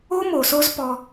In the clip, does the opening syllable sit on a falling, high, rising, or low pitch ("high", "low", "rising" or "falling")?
high